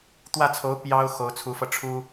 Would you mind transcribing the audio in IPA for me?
t̪wä˥˩t͡sʰo˧˥ʊ̯ pjɑ˥ʊ̯ xo˧˥ʊ̯t͡sʰu˧˥fɤ˧ ʈ͡ʂʰu˥

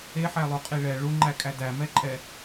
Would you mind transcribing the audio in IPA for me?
eħælˠuqʼi ɭɛ ɭuŋ͡ǃækʼæ dæmɛǃʼɛ

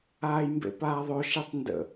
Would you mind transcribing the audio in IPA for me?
aːjmbḛpaːðˤo ʃitˤndə̰

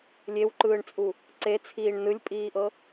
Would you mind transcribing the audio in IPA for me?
lʲewǃɯːɳt͡sʼu | ǀe t͡sʰiːɳnɯlʲpʼiːʔɤ

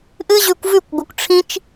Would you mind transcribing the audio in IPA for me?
ʔɨ˦ʑʉ˧kʷvʉ˦˨kʷɡʷɨ˨kʷ ʈ͡ʂʰĩ˦t͡ʃ

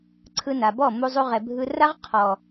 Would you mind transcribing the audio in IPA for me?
ǀʰɯ˧na˨bɔ˦˨ mu˧zˤu˧ ʁɛ˨bʱɯ˧ ra˦ʁ qʰɔ˨

